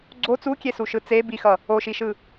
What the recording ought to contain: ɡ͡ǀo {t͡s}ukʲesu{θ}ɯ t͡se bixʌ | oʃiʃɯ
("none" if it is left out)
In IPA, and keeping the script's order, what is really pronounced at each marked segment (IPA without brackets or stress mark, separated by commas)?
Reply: t͡s, ʃ